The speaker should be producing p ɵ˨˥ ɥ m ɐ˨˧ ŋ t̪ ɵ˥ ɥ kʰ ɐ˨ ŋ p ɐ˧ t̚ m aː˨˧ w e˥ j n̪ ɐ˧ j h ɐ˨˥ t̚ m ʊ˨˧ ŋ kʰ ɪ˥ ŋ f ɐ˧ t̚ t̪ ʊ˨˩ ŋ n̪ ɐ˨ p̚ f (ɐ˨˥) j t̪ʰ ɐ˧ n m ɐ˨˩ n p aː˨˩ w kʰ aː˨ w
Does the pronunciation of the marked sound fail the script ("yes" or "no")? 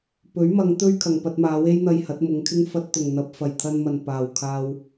yes